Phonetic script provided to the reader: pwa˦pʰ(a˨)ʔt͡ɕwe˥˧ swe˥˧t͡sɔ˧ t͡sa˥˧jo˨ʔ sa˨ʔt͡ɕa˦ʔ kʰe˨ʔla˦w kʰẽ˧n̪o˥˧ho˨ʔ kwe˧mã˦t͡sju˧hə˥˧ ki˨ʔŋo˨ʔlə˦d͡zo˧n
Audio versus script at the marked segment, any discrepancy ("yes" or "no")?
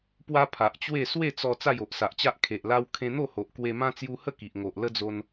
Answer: no